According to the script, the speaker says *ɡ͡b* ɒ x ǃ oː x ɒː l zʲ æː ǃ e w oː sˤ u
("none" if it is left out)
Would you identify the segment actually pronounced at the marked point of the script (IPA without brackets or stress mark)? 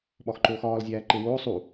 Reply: ɓ